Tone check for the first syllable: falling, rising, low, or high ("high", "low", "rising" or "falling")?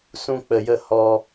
high